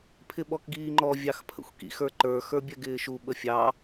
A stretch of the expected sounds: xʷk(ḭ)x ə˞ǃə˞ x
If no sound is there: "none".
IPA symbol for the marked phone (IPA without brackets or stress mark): ḭ